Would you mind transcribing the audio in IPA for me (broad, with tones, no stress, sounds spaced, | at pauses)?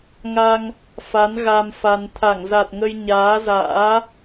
ŋ a˧ ŋ | f a˨˦ n ɣ a˧ m f a˧ n t̪ʰ a˧˩ ŋ z a˨˩ t̚ ŋ ə˧ j ɲ aː˨˦ z a̰ː˧˥